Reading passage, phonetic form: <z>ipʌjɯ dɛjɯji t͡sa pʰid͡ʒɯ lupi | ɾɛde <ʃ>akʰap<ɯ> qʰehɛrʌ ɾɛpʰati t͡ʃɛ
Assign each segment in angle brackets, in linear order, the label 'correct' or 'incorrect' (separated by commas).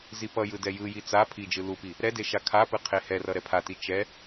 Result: correct, correct, correct